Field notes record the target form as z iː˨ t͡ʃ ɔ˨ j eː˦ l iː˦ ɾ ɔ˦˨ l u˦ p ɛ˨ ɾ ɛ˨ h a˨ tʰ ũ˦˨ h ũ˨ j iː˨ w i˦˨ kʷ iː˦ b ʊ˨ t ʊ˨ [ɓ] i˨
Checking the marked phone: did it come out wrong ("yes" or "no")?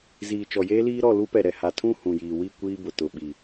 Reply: no